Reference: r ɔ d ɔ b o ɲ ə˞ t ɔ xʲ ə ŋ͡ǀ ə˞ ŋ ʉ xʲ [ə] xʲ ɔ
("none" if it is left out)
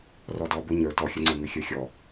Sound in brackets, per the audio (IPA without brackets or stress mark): ə˞